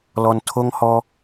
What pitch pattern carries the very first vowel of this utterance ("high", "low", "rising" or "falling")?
low